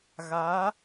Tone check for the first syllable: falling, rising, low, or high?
rising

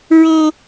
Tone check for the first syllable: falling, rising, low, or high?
high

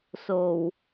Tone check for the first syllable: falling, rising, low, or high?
low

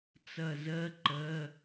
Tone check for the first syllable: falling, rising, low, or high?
falling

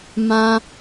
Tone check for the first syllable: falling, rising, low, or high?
high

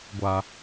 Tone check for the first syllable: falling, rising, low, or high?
low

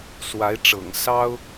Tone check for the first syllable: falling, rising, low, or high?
rising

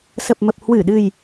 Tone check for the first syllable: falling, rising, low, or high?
low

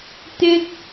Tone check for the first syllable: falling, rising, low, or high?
high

